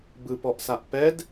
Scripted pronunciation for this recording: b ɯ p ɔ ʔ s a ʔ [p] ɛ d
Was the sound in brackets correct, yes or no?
yes